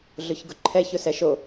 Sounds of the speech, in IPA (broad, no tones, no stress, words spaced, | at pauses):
ɮʊçɡʊǃʰɛç ʊsɛʃo